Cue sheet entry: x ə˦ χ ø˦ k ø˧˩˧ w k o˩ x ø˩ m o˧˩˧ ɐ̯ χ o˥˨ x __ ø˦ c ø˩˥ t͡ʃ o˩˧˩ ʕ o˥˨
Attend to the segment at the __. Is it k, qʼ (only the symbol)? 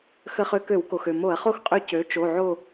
qʼ